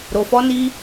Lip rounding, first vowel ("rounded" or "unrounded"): rounded